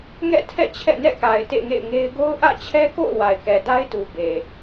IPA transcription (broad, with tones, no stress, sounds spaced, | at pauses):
ŋ ɛ̰˦˨ tʰ ɛ̰˦˨ t͡ɕʰ ɛ̰˦˨ n ɛ̰˦˨ k a˨ ɪ̯ t ḛ˦˨ ŋ ḛ˦˨ ɪ̯ ŋ e˦ ɪ̯ ɡ o˦ ʊ̯ ʔ ä̰˦˨ t͡ɕʰ ɛ˦ k o̰˦˨ ʊ̯ w a˨ ɪ̯ k ɛ˨ d a˦ ɪ̯ t u˨ b e˨